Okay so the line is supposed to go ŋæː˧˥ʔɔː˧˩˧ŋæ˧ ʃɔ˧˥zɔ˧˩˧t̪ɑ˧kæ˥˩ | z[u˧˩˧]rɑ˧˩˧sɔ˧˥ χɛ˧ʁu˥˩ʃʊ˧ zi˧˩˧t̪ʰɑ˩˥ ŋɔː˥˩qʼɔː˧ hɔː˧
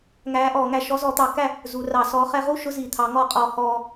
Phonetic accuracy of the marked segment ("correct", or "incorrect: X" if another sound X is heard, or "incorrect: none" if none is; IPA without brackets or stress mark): correct